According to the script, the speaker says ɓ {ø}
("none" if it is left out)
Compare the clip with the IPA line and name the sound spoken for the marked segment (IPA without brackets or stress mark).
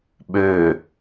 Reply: ø